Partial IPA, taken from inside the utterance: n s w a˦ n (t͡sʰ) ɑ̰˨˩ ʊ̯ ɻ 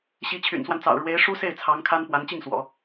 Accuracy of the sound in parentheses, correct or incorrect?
incorrect